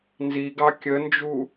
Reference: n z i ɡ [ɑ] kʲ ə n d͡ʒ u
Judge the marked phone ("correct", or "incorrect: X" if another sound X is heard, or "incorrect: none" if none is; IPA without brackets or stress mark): correct